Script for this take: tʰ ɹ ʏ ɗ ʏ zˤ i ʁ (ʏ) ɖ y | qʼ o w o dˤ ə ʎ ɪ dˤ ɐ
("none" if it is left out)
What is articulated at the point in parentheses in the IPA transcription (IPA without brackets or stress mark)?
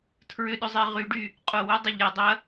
y